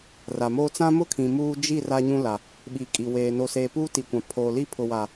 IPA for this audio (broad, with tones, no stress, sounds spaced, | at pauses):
r a˨ m oː˦ t͡s ã˦ m ʊ˦ kʰ ĩ˨ m uː˦ d͡ʒ i˦˨ r a˦ ɲ ũ˦ l a˨ | ɓ i˨ kʼ i˨ w eː˨ n o˨ s eː˨ p uː˦ t i˨ kʷ ã˨ pʰ oː˨ l i˦ pʰ ʊ˨ w a˨